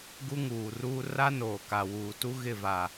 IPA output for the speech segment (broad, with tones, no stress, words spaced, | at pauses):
ɡu˦ŋuː˨ruː˦ ra˦noː˨ka˨ wuː˨tu˦ɣɪ˦˨va˨